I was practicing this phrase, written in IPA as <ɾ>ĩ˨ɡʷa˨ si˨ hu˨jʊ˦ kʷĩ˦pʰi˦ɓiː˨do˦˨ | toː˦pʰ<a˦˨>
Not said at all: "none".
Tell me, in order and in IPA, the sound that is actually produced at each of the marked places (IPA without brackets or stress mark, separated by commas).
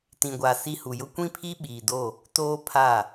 t, a˦˨